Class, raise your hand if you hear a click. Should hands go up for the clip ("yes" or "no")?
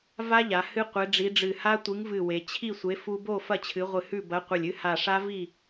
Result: no